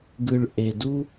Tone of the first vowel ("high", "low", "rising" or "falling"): low